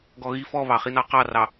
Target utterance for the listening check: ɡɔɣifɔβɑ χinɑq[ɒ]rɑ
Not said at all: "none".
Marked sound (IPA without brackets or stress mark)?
ɑ